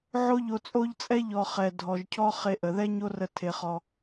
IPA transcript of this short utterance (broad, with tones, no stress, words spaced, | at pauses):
ʕo˦ʎo˧t͡sʼo˦ʎt͡sʼɛ˦ ʎɔ˨ χɛ˨dʱɔ˨ʒcʰɔ˦ χe˧ʔə˨ ðɛ˦ɲo˦rə˧ tʰe˧χɔ˧